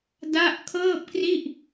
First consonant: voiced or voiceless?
voiced